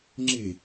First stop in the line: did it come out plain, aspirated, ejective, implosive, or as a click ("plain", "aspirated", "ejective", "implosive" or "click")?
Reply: click